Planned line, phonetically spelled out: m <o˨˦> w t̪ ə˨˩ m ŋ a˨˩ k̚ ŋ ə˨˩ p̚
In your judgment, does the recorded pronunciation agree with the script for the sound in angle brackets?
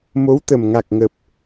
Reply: yes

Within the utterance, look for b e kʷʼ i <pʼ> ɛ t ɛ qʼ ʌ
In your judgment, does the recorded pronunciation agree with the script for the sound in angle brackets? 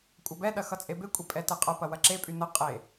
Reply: yes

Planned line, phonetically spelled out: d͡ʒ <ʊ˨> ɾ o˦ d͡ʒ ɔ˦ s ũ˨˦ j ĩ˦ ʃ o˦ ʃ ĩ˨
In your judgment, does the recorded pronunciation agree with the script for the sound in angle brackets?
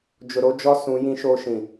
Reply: yes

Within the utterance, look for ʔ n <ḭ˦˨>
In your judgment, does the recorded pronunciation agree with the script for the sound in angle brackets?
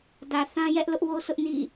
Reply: yes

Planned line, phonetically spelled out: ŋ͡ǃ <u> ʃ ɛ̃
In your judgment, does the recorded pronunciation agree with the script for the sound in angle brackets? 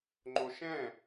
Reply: no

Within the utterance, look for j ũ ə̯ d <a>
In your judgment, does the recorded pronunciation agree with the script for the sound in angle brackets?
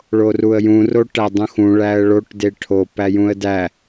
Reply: no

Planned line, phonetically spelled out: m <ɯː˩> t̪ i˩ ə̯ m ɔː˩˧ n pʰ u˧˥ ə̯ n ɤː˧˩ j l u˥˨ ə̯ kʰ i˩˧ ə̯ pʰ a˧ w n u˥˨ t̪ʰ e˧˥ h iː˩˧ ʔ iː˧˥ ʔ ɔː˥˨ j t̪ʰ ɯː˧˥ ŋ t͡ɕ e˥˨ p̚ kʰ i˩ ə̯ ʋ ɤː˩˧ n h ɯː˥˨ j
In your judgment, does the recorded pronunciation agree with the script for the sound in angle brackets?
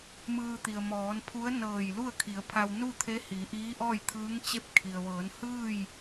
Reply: no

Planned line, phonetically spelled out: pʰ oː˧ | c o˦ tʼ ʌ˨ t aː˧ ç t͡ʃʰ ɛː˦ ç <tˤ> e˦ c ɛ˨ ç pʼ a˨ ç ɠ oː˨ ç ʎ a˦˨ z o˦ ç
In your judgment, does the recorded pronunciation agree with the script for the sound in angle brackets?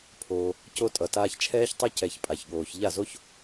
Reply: yes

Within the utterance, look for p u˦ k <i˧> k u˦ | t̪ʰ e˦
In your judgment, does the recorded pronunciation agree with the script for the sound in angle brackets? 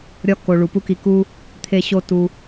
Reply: yes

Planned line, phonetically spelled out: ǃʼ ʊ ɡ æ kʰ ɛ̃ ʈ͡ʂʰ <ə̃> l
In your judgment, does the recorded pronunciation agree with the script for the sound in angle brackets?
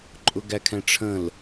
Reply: yes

